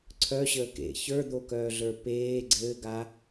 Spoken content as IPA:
ǀʰœɕəː kḛ çə˞d̪okœːɮə˞ peː ɡ͡ǀɘːɡa

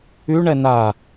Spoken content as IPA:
yɳɛ na

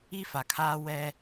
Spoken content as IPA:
i˦ fa˨kʰaː˦ wɛ˦

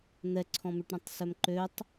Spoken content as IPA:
n̪ɛǀʰɔ̃mʉʈɾõtˤ sœmǃøtˤ

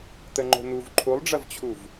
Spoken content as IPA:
t̪əŋ͡ǃo̤n̪uv ǃʰulˠɖ͡ʐɐvt͡ɕʰuv

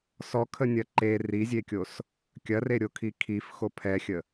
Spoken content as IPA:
sɔkʰənʲɐ ǃe rizʲekʲos | kʲɐreɾʲokʰi kʰifxo pʰɛxʲə

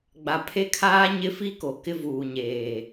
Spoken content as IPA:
ɡ͡ba˨pʰe˦kʰaː˦ ɲɪ˦fi˦ko˨ kɪ˦vuː˨ɲeː˨

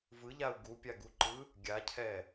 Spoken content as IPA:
vɯʎau̯ ɡupʲaɡuǃɯ | ɡʲacʰɛ

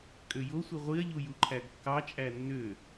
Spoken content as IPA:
kʼøjosʷi ʁʷiɐ̯ʎu juǃʰæɡkːɑt͡ʃʼæ nːø

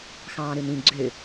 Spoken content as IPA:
xɑ̃ːɾɯnĩ ɡ͡ǀø

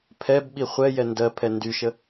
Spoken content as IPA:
pʰɛb ɓiχʷɛjɛ ndɜ pʰɛndyʃə

